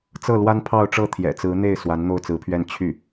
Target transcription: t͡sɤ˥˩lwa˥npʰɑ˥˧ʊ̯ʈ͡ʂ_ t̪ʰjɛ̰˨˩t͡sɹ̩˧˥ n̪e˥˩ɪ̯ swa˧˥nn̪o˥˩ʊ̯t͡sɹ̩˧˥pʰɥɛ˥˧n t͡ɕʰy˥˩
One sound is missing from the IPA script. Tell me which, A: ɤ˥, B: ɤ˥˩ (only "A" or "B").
B